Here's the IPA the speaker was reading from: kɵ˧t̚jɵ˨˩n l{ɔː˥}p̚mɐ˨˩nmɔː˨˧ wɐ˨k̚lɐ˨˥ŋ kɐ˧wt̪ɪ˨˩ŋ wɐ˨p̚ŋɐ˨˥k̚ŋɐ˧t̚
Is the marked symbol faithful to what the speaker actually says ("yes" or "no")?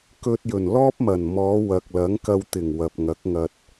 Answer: yes